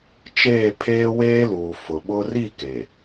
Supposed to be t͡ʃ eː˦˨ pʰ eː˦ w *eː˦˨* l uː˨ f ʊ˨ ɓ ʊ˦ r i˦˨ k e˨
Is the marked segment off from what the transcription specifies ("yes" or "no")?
yes